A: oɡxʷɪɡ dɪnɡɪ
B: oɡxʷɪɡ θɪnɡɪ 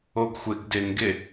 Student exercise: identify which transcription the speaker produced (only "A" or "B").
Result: A